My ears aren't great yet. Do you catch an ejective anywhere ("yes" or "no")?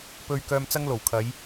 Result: no